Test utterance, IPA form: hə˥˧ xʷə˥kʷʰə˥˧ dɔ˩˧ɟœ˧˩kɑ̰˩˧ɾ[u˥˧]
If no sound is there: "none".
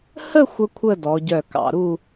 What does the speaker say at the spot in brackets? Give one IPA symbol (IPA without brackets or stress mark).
u˥˧